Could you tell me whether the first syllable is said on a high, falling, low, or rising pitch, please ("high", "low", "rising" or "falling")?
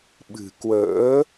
low